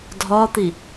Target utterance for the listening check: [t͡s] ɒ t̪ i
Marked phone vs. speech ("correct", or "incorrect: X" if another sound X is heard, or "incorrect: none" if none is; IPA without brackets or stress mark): incorrect: dʱ